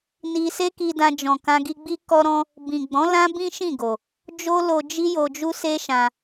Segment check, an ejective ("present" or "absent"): absent